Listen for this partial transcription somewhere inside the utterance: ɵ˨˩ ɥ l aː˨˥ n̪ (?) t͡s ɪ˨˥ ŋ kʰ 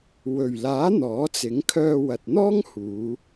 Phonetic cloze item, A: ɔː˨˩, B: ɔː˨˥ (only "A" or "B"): B